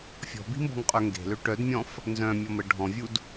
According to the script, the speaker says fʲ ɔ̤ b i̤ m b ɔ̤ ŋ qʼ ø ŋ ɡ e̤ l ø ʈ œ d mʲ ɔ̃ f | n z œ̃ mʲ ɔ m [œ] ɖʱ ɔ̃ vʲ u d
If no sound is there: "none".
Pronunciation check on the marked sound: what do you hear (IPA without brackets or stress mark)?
ə